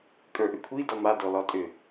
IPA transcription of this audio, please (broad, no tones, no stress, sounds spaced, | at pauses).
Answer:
kʼ ə˞ ʔ ʏ kʷʰ i d ɔ m a d ɔ l ɒ tʼ ʏ